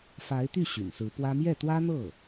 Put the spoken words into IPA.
fa˧˥ɪ̯t̪y˥˩ ɕy̰˨˩nsɹ̩˧˥pwä˥ mjɛ˥˩t̪wä˥n̪ɤ˥˩

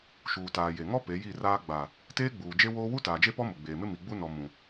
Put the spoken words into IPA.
ʃuː˨taː˨je˨ŋɔ˦ pe˨˦ji˦˨raː˦ ɡ͡ba˨ | teː˦ɡ͡buː˨d͡ʒe˦woː˦ wu˦taː˨d͡ʒe˦ pɔ˦mʊ˨ɡ͡beː˨mɪ˦ mi˨ɡ͡bu˦nɔ˨ mũ˨

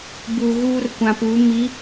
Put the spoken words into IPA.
bu˨ ɣuː˦rkʷã˨pu˨˦ mi˨˦

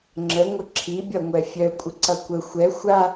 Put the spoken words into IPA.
ŋ͡ǁəŋʷə ǁʰibʲʌŋʷɛ fʲœkʷʼəǀʌ kʷə xʷɛ xʷa

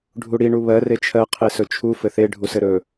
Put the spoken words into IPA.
ɖʱuɽi ɳuβɜ ret͡ʃʰɜ qʰesɵt͡ʃʰu fɘθe ɖʱusɘɾɵ

